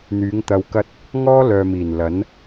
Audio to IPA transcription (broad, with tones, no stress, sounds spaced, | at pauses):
n̪ yː˨˥ ŋ t̪ ɐ˧ w k ɐ˥ t̚ | ŋ ɔː˥ l œː˨ m iː˨˩ n l ɐ˨˥ n